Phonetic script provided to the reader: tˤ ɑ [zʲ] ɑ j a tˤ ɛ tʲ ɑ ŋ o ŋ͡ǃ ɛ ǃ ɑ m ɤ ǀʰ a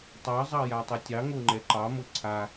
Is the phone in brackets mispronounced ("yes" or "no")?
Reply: yes